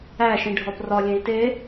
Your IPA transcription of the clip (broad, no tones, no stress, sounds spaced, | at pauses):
æ ʃ ĩ ɖʱ ɒ p r ɒ lʲ ẽ i̯ t e